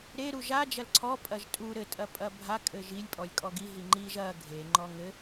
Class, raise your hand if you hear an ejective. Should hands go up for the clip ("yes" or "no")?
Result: yes